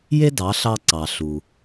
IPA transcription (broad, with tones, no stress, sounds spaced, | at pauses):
j e˥ d ɑ˩˥ ɬ ɑ˧ ǀ ɑ˩ ɬ u˩